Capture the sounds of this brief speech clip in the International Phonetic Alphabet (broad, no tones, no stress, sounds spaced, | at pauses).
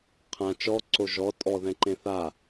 qʰ ã t͡ʃ ɔ ǀ o ʒ ɔ tʼ ɔ ð ɛ̃ ǃ ẽ θ a